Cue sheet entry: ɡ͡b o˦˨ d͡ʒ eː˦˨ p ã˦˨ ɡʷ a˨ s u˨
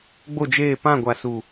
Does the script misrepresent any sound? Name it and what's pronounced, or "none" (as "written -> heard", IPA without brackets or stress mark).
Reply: none